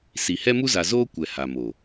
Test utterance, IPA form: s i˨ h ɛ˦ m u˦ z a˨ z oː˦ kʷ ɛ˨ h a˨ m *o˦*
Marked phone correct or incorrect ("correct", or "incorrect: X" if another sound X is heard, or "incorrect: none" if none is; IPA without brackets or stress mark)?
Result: incorrect: o˨